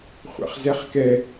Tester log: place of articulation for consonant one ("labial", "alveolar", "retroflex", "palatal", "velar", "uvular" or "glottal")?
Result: uvular